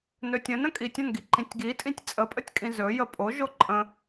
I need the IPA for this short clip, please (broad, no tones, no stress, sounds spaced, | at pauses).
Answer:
n ɵ tʲ ə̃ n ə̃ kʼ i tʲ ə̃ n ɡ i ǃ ĩ tʲ ɡ i tʼ ĩ tʲ t͡sʼ ə pʼ ə tʲ kʼ ĩ z ɵ j ə pʼ o ʒ o ǃʼ ə̃